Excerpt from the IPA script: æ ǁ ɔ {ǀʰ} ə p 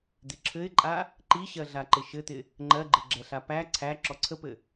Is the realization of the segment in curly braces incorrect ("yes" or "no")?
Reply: no